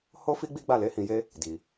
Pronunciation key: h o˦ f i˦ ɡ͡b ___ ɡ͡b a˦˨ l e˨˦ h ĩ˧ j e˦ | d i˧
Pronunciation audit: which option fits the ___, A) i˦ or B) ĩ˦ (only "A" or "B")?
A